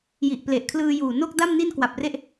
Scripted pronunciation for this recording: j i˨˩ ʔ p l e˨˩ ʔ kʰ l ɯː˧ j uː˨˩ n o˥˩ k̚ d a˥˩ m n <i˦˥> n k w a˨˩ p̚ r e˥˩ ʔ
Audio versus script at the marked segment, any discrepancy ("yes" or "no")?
yes